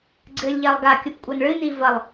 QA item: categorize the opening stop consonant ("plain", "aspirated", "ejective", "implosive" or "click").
click